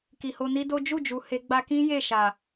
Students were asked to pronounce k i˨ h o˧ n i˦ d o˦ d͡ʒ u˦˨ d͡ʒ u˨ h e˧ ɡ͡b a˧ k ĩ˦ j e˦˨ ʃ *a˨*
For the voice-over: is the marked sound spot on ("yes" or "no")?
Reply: yes